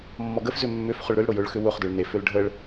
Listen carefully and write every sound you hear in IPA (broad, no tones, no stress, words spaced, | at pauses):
mːɔɡəfzʏ mːʏf χʊɭɾʏlɽʊ jʊɭxʏ wʊχdʊɭ nefʏl ɖʱəɭ